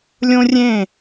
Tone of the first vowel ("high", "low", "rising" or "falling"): high